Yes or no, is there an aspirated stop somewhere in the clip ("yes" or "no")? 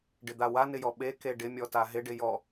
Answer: no